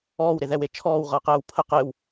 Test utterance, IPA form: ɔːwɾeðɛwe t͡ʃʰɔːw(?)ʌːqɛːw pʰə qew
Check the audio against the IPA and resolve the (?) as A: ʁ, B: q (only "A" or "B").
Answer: A